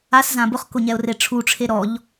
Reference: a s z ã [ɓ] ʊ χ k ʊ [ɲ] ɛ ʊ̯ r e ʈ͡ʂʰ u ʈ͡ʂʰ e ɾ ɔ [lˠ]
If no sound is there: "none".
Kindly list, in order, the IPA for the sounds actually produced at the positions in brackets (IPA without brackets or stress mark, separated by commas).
b, ɲ, ʎ